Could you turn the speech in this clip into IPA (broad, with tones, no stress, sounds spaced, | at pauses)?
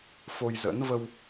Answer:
f o˧ j z ə̰˧˥ n v ə˧ w